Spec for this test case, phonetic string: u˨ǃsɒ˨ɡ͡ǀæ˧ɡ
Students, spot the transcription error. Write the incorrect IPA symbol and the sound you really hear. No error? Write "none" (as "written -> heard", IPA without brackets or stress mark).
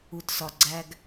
ǃ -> t